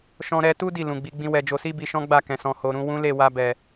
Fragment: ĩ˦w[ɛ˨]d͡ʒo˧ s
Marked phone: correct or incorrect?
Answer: incorrect: ɛ˧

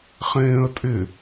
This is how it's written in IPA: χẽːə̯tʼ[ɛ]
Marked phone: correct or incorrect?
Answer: incorrect: ɪ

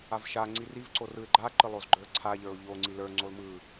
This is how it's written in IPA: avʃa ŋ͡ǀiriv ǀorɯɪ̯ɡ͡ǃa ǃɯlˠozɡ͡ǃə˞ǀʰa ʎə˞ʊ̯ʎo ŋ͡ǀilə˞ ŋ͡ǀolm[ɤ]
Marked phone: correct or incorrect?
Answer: incorrect: ɯ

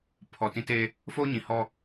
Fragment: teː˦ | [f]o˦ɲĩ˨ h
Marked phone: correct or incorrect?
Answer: correct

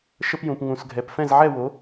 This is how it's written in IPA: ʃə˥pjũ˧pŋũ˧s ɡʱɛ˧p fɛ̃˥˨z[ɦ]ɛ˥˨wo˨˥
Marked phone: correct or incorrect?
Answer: incorrect: ʕ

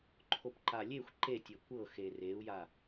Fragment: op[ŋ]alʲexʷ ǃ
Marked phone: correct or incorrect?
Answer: incorrect: ǃ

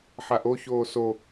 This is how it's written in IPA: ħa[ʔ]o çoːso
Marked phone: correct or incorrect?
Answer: correct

